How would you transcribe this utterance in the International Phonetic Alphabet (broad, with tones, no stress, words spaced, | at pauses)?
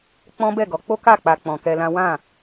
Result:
k͡pɔ̃˦bɛ˦˨ɡɔ˨˦ k͡po˦ka˦˨k͡pa˨ k͡pɔ̃˨kɛ˧lã˦ wã˦˨